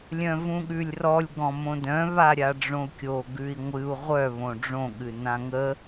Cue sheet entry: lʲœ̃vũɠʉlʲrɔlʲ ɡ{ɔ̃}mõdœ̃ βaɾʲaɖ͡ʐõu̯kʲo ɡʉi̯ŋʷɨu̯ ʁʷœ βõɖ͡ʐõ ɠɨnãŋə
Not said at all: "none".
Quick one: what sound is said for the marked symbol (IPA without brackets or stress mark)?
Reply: ɔ̃